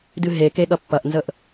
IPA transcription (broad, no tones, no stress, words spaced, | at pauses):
dɨɦeke ɠɐpːɐʔnzəʔ